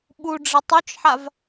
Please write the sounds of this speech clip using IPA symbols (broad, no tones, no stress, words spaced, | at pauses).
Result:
ɓuɖ͡ʐɪ tˤut͡ʃħav